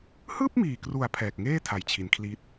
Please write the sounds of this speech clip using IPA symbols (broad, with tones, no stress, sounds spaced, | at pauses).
h ɯː˥˩ p̚ m iː˨˩ k r u˩˦ a̯ pʰ ɛː˨˩ k̚ ŋ eː˥˩ tʰ a˨˩ j t͡ɕʰ i˩˦ n kʰ l i˦˥ t̚